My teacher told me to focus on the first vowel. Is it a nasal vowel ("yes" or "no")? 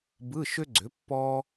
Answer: no